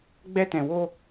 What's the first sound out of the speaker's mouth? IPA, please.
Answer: ɡ͡b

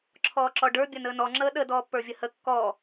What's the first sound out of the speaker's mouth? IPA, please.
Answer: ǁʰ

